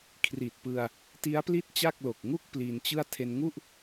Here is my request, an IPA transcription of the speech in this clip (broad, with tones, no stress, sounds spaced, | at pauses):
kʰ r i˨˩ t̚ p ɯ˧ a̯ | t i˦˥ a̯ p l i˥˩ t̚ t͡ɕ a˥˩ k̚ l o˨˩ k̚ ŋ u˥˩ k̚ p l i˧ n t͡ɕ ɯ˥˩ a̯ tʰ e˧ n ŋ u˥˩ ʔ